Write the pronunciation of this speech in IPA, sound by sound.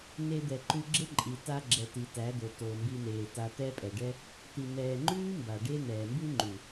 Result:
n e˧ d̪ ɛ˨ ǃ ʉ˧ ɡ͡ǁ e˦ ǃʼ i˨ t a˧ ɡ͡ǁ ɛ˨ t i˨ t æ˨˦ d̪ o˨ t o˨ m b i˧ n̪ eː˨ t a˧ t̪ ɛ˦ pʼ ɛ˨ ɖ ɛ˦ | t̪ i˨ n̪ ɛː˨ ŋ͡ǃ ʉː˦ m b a˨ ɖ e˦ n̪ ɛː˨ m b ʉ˦ ŋ͡ǃ ʉ˨

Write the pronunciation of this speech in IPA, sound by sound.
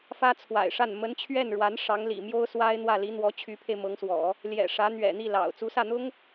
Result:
f ä˥ t͡sʰ w a̰˨˩ ɪ̯ ʂ a˥˩ n m ə˧˥ n t͡ɕʰ ɥ ɛ˥˩ n ɻ w a˧˥ n ʂ ɑ˧˥ ŋ l ḭ˨˩ m j o˥ ʊ̯ s w a˥ ɪ̯ n̪ w ä˥˩ l i˧˥ n̪ w ɔ˧˥ t͡ɕʰ y˧˥ pʰ e˧ ɪ̯ m ɤ˧˥ ŋ s w ɔ̰˨˩˦ | l j ɛ̰˨˩ ʂ ä˧˥ n̪ ɥ ɛ̰˨˩ n̪ i˥˩ l ɑ̰˨˩ ʊ̯ t͡s u˧˥ s ä˥˩ n̪ ʊ˥ ŋ

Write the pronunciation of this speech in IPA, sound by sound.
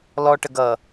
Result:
l ɔ ʈ ə ɡ ʌ

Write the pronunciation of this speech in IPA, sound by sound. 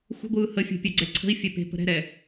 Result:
xʷ ə̤ ɡʷ ɯː h ə fʲ ɛ̤ pʲ ɛ ɡ͡ǀ ɛ ǀʰ ə̤ i̯ fʲ ɛ p e̤ p ə̤ ɾ ɛ̤ ɾ ɛ

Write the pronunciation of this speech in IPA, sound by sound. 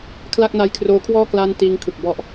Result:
kʰ l a˥˩ k̚ n a˦˥ j kʰ r oː˦˥ kʰ w ɔː˥˩ k l aː˥˩ n t iː˦˥ ŋ kʰ ɯ˨˩ k̚ b ɔ˦˥ ʔ

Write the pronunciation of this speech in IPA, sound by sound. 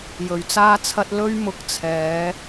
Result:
j ɵ˨ ɥ t͡s aː˧ t͡sʰ ɐ˧ t̚ l ɵ˧ ɥ m ʊ˨˥ k̚ t͡sʰ ɛː˨˧

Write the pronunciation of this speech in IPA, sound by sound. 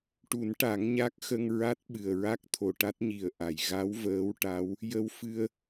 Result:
ʈ u˨˩˦ n ʈ a˨˩˦ ŋ ɲ a˦˥ k̚ x ə˧ ŋ ɹ a˦˥ t̚ ɓ ɨ˨˩ ə̯ ɹ a˦˥ k̚ t̪ʰ o˨˩ ʈ a˦˥ t̚ ɲ i˨˩ ə̯ ʔ a˨˩˨ j ɣ a˧˥ w v əː˧˥ w ʈ a˧˥ w | j ə˧ w f ɨ˧ ə̯

